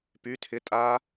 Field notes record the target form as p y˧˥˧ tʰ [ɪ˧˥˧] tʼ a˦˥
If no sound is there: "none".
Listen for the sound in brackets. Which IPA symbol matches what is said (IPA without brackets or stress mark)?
ɪ˧˥˧